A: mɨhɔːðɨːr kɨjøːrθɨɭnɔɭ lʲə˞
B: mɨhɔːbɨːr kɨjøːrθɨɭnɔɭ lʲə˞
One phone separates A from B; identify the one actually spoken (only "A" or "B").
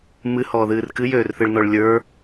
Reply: A